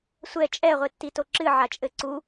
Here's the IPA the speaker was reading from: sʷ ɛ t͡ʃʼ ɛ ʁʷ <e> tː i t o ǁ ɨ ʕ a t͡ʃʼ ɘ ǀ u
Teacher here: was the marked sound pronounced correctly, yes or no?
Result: yes